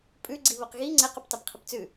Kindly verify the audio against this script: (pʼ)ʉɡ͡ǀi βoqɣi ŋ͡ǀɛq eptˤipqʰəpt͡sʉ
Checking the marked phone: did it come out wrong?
no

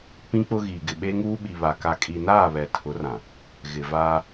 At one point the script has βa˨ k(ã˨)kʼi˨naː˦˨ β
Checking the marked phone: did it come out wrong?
yes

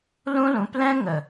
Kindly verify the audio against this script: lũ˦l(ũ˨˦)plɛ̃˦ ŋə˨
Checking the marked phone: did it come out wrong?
no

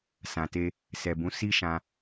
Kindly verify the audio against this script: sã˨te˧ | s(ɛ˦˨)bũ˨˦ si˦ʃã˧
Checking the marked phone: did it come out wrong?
yes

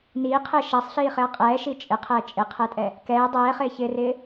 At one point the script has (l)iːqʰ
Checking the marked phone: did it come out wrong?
yes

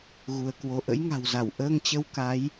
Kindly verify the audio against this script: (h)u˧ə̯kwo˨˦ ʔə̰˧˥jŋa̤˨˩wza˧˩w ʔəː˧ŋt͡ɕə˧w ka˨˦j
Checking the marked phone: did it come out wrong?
yes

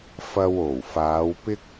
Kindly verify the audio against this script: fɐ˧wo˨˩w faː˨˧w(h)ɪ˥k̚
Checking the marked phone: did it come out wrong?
yes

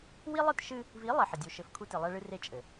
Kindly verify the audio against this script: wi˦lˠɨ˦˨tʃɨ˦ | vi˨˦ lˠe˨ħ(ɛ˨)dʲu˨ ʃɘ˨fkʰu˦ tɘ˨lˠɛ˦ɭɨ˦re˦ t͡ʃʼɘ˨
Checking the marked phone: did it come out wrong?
yes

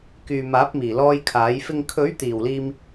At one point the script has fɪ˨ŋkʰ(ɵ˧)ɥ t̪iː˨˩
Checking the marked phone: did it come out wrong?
yes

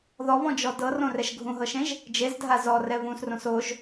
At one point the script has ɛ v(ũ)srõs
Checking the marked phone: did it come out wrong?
no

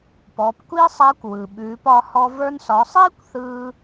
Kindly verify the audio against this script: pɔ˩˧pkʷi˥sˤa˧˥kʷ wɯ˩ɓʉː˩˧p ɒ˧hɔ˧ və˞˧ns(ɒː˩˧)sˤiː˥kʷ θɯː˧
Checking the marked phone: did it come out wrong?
yes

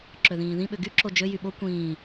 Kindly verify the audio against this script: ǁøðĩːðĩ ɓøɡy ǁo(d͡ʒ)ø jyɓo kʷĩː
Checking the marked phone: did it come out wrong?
no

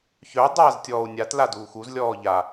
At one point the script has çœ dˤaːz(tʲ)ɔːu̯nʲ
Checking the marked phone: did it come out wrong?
no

